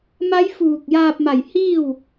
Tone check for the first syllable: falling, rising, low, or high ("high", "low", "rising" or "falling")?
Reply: rising